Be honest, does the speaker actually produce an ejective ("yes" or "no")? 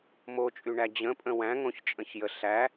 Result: yes